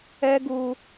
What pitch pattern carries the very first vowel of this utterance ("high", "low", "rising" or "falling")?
high